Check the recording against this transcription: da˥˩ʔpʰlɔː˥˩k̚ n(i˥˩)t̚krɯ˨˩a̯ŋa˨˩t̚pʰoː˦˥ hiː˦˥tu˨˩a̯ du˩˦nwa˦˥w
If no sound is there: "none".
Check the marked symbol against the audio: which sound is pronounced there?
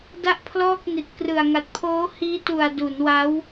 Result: i˨˩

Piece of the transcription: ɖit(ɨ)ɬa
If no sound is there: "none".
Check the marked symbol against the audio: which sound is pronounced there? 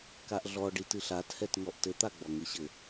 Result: ɨ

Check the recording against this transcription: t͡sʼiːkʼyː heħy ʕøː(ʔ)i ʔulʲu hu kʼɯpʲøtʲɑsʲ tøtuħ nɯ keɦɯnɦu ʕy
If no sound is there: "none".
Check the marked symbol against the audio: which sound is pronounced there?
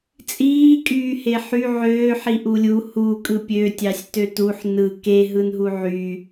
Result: ħ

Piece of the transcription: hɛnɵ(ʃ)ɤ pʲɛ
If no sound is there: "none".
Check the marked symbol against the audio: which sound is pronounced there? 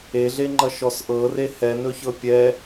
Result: ç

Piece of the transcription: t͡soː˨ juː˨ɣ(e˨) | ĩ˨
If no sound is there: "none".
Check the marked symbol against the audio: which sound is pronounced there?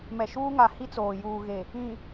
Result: e˨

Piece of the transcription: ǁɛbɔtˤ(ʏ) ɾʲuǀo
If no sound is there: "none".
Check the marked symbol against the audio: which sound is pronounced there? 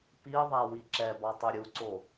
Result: ʏ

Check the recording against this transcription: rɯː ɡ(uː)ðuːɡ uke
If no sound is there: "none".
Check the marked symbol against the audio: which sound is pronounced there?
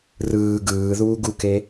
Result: ɯː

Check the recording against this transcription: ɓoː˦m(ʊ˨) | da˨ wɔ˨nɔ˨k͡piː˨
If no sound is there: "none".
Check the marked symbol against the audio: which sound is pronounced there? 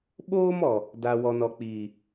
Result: ɔ˨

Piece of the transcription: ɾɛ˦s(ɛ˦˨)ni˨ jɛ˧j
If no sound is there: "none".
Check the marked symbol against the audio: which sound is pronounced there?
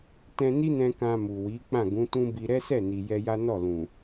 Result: ɛ˦˨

